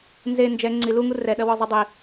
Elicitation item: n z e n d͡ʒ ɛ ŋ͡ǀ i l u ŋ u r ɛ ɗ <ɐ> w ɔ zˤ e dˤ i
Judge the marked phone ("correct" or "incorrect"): correct